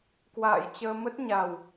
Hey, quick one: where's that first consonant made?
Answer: velum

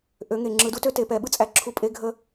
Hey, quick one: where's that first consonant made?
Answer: throat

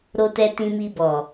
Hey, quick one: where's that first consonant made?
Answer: tongue tip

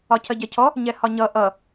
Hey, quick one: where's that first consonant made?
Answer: palate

